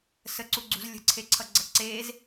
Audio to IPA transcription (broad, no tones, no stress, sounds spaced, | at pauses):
s ə ǀ u ɡ͡ǀ ṳ z lʲ ə̤ ǀʰ e ǀʰ ʌ ɡ͡ǀ ʌ ǀ e z